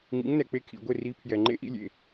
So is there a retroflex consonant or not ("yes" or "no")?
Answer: no